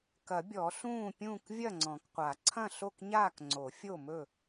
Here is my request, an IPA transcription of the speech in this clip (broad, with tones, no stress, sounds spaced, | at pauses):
k ɐ˨˩˦ bʲ ɔ˨˩˦ ɬ ũː˥˨ pʲ ũː˥˨ k vʲ ɐ˥˨ ŋ͡ǀ ɔ̃˨˩˦ k qʷ a˨˩˦ ǀʰ ɐ̃˥˨ ɬ o˥˨ k ɲ aː˥˨ k ŋ͡ǀ o˨˩˦ fʲ o˥˨ m ɵ˥˨